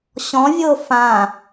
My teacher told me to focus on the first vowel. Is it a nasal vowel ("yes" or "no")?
yes